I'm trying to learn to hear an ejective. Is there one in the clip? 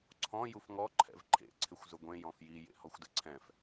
no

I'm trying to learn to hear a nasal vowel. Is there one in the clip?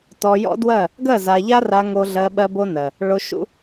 no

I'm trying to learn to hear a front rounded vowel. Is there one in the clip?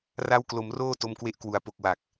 no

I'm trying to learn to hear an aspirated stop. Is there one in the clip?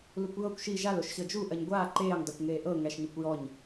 no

